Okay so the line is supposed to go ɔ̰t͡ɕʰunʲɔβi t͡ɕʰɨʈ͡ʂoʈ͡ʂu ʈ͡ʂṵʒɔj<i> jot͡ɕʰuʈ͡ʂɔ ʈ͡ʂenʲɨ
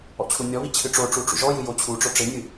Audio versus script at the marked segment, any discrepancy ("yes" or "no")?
yes